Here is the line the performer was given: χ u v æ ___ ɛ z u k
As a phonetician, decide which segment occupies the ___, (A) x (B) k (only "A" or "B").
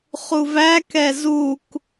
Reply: B